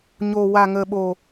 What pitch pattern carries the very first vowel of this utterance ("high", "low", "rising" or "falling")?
low